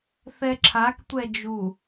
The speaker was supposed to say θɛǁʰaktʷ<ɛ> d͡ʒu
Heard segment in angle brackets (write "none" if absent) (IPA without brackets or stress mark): ɛ